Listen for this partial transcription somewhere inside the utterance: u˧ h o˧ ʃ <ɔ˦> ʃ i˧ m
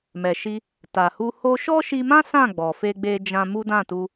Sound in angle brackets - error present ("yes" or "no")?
no